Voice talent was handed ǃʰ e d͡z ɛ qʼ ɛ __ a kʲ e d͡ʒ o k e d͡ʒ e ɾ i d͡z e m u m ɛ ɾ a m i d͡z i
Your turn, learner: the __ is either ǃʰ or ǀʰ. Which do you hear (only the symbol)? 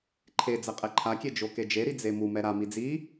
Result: ǃʰ